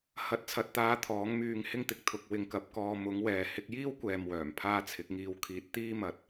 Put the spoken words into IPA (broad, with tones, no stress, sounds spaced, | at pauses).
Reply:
h ɐ˨˥ t̚ t͡sʰ ɐ˨ t̚ t̪ aː˧ t̪ʰ ɔː˨˥ ŋ m yː˧ ŋ h ɪ˥ ŋ t̪ ɪ˧ k̚ t̪ʰ ʊ˧ k̚ w ɪ˧ ŋ k ɐ˧ p̚ k ɔː˧ m ʊ˨˥ ŋ w ɛː˨ h ɪ˧ k̚ j iː˥ w kʷ ɛː˨ m w œː˨˩ m pʰ aː˥ t͡sʰ ɪ˨˥ k̚ ŋ iː˧ w kʰ iː˧ t̚ t̪ iː˥ m ɐ˨˥ t̚